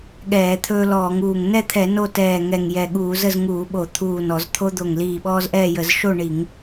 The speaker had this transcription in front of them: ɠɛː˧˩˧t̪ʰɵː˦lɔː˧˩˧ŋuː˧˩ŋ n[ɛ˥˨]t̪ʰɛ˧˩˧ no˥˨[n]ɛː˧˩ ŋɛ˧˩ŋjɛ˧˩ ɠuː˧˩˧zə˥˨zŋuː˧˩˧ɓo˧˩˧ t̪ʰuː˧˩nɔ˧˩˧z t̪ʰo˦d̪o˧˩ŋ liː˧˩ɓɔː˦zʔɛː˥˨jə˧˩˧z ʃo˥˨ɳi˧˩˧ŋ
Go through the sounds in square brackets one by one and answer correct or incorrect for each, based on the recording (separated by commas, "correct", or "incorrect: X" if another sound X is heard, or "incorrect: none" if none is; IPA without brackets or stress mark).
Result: correct, incorrect: t